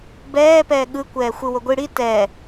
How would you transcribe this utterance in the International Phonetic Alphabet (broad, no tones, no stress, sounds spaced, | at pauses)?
b ɛː p ɛː ɠ ɯ kʷ ɛː xʷ ɯ w o ɡʷ i ɽ i t ɛ